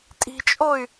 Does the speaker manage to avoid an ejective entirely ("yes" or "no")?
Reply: no